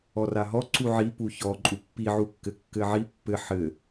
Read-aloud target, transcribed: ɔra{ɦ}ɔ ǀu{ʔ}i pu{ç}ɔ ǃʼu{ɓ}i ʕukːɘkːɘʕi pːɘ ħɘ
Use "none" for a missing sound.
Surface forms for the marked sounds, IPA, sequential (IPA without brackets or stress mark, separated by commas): ɦ, ʕ, ç, pː